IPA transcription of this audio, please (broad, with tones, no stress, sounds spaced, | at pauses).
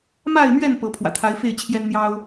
m a˥˨ ɪ̯ m ɥ ɛ˥˨ n p ɤ˨˦ pʰ w ä̰˨˩ t̪ʰ a˨˦ ɪ̯ f e˥˨ ɪ̯ t͡ɕʰ j ɛ˦ n n̪ j ɑ˦ ʊ̯